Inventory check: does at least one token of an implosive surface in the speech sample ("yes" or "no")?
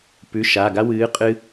no